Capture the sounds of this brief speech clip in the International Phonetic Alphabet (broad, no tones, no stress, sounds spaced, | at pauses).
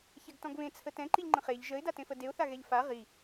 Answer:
ç ɛ ɡ t ɔ̃ ɡ β ẽ t͡sʰ ə t ɛ̃ ǃ i ʎ ŋ͡ǃ ə̃ χ e ʎ ʒ ə ɪ̯ d a t ẽ f ə d e ʊ̯ θ a ɣ ɛ ʎ f a ʁ i